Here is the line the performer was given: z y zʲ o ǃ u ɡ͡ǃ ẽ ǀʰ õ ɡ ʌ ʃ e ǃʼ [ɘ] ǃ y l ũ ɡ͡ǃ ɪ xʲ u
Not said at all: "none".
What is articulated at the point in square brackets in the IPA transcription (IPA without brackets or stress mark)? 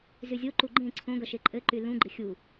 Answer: ɘ